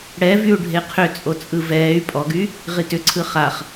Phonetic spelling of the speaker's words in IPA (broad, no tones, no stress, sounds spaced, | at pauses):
ɽ ɛ v y u̯ ɖʱ e qʰ ʏ t͡sʼ o t͡sʼ ɯ v ɛː y̯ pʼ ɔ ɡ y | ʁ i t ʏ ǀʰ ɯ χ a χ